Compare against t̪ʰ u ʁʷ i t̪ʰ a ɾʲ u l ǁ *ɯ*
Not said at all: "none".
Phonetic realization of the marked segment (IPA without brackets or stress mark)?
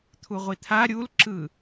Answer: ɯ